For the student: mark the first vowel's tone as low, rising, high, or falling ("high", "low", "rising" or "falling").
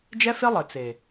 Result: high